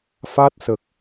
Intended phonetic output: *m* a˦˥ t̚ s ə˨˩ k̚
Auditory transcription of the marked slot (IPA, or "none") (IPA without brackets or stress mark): f